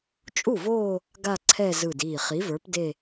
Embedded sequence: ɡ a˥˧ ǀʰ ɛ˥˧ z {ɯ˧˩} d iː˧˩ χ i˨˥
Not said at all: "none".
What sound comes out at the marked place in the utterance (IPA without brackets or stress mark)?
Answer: ɯ˧˩